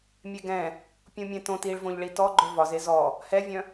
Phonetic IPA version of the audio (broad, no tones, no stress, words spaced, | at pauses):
mʲeɡɛ̃ | pʲũmʲɛ̃tõt iɭvõʎɭi tɔɡ͡ǃœ vɒze zɔ | hɛvʲœ̃